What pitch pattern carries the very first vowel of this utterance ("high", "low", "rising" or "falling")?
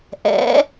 rising